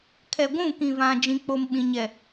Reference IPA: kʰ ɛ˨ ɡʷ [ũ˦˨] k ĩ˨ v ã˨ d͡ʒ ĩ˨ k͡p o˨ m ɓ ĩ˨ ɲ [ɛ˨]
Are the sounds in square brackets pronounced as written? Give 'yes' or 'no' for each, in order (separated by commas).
yes, yes